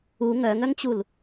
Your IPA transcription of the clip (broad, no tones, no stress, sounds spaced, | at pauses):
u ŋ œ ŋ œ ŋ t͡ɕ u l